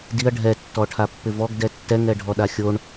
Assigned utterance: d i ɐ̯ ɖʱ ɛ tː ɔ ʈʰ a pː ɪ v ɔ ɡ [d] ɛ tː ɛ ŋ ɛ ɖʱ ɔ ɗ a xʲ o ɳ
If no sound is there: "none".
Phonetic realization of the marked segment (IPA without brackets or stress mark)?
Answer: d